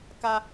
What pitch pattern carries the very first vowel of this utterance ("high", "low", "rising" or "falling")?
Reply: high